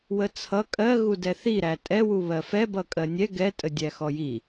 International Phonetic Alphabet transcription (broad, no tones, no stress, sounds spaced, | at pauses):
w ə t͡sʰ ʌ kʼ ɜ ɣ u d ɛ θ i ɾ æ tʼ ɛ w u β ɜ f ɛ b ʌ kʼ ɜ nʲ ɛ ɡ ɛ tʼ ə dʲ æ x ɔ j i